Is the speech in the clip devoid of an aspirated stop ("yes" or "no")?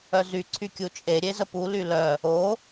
no